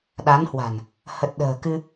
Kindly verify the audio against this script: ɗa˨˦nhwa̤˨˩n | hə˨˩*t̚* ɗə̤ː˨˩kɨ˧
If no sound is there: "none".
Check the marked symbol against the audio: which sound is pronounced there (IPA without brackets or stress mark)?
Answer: t̚